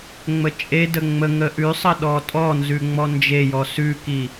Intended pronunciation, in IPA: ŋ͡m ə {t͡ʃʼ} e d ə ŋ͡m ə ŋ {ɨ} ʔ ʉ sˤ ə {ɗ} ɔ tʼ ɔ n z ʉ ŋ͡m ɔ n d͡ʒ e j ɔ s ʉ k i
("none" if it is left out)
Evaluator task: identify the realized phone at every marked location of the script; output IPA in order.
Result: t͡ʃʼ, ə, ɗ

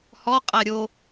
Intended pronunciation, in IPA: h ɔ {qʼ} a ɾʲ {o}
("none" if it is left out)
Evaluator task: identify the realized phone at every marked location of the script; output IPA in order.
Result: qʼ, o

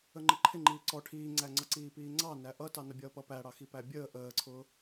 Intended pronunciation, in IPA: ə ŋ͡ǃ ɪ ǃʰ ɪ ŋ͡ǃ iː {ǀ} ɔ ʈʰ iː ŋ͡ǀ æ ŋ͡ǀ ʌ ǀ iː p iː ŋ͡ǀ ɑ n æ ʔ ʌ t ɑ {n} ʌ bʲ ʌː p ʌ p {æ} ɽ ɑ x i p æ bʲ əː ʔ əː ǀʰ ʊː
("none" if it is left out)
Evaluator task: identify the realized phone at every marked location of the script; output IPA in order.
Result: ǀ, n, æ

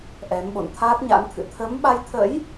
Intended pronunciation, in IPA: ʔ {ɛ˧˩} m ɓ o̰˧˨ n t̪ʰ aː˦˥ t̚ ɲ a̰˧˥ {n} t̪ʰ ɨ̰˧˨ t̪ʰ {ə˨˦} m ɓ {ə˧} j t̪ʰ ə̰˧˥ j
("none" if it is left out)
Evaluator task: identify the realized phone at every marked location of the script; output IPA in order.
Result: ɛ˨˦, n, ə˨˦, a˧

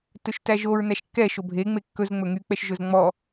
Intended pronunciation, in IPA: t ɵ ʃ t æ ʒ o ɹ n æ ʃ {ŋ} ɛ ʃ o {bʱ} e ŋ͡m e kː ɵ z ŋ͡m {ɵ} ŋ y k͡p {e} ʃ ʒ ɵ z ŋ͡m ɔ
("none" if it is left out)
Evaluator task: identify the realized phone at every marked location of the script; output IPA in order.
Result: kː, bʱ, ɵ, ɛ

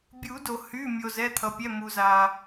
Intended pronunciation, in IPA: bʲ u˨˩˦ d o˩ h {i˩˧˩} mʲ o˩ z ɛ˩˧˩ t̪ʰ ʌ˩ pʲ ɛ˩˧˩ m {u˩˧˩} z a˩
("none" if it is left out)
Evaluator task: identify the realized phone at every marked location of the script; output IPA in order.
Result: y˩˧˩, u˩

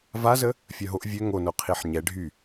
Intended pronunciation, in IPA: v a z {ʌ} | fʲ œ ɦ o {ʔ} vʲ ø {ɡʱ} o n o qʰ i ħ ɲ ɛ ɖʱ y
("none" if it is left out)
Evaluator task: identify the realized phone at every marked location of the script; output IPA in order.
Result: ə, ʔ, ŋ

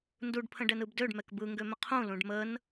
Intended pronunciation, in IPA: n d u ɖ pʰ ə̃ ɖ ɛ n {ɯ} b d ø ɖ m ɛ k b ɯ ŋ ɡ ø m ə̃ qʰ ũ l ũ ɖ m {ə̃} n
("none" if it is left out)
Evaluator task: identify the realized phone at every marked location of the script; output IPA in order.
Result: ɯ, ə

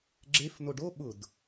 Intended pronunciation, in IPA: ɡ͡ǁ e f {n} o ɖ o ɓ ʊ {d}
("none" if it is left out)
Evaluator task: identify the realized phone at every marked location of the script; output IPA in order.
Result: n, d

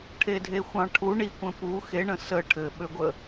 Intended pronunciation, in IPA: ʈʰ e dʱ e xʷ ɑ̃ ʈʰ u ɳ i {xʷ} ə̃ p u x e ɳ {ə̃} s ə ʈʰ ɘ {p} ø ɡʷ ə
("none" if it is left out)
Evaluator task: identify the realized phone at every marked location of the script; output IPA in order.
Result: kʷ, ə̃, ɓ

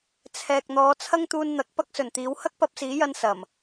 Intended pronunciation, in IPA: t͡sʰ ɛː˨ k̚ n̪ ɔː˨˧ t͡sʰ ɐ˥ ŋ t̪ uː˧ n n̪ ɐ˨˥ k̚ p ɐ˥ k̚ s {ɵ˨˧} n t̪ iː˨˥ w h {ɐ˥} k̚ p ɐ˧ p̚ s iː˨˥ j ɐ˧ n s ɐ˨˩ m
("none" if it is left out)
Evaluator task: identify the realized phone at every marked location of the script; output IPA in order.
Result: ɵ˨˩, ɐ˥

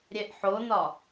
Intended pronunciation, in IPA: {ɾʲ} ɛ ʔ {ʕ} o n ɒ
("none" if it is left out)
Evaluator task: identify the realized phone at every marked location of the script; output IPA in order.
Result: ɾʲ, ħ

